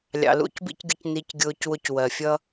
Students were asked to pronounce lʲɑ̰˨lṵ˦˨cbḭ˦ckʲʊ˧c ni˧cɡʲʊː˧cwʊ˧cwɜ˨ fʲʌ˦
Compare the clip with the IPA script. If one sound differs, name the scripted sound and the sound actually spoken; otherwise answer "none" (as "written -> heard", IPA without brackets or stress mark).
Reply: kʲ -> ɡʲ